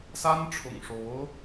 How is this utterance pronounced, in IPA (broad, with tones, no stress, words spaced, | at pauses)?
sa˥nʈ͡ʂʰʊ̰˨˩ŋʂo˧˥ʊ̯